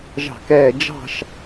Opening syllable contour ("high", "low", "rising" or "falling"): falling